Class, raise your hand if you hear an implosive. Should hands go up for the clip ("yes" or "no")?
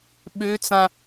yes